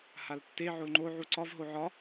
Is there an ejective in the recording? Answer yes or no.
no